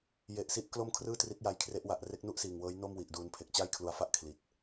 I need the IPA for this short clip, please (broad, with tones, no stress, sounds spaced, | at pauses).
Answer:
j e˨˩ ʔ s i˦˥ ʔ k l o˥˩ m kʰ r ɯː˥˩ t r i˦˥ t̚ j a˧ j kʰ r e˦˥ ʔ w a˨˩ ʔ r e˦˥ k̚ n u˥˩ ʔ s iː˨˩ ŋ w ɤː˦˥ j n o˥˩ m w i˨˩ ʔ d uː˧ n pʰ e˨˩ k̚ t͡ɕ a˥˩ j kʰ l u˧ a̯ f a˥˩ ʔ kʰ l i˨˩ t̚